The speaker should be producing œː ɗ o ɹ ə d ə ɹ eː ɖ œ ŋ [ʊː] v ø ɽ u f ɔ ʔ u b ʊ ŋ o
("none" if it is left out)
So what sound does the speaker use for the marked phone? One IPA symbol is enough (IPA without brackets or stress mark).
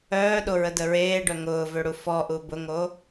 ʊː